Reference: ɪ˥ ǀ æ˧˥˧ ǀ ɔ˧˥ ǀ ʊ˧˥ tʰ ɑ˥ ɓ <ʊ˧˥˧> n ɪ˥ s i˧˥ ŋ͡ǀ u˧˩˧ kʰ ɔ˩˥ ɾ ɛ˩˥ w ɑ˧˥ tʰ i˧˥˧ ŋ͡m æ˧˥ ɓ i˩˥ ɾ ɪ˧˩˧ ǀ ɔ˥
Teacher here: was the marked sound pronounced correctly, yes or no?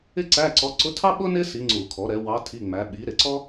no